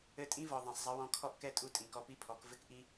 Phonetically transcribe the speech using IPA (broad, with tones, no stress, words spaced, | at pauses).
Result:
ɘ˧tʼĩ˦vɔ˨ ðˤɛ̃˨sˤzˤɐ˦wɔ̃˦ kʰɔ˦ʔkɛ˦tʼu˧ tʼĩ˨kɔ˧pi˦pʰɔ˨˦k vɘ˦kʔi˦